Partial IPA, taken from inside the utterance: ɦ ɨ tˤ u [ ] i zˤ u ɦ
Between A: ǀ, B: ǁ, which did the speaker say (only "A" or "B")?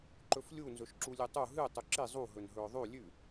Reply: B